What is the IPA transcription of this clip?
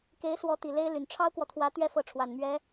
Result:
ke˧˥ɪ̯swɔ˧˥ t̪i˨˩le˥ɪ̯ly˨˩n ʈ͡ʂʰɑ˥ʊ̯kwɔ˨t̪ʰwä˧˥ t̪ɥɛ˥fɤ˧˥ ʈ͡ʂʰwa˨˩nmɥɛ˧˥

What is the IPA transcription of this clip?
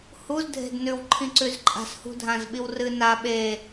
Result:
huz dʱe̤dnʉw ǃʰĩǀʉzǃʼa̤s hṳdʱãzɓiwrɨ na ɓe

